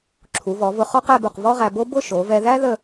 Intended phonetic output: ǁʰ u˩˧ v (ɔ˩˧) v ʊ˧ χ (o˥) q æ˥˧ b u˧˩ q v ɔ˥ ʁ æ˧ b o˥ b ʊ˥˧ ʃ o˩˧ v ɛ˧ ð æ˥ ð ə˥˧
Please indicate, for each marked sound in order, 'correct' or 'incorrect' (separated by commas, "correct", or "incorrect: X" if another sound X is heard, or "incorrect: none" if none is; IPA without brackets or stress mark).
correct, incorrect: ɔ˥